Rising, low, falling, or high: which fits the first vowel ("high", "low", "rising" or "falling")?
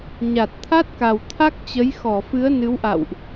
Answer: low